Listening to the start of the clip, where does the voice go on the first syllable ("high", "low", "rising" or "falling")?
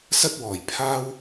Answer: high